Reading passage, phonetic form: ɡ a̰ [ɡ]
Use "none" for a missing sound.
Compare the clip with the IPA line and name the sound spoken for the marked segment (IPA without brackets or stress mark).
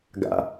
none